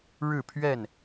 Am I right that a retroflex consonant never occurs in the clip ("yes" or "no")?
no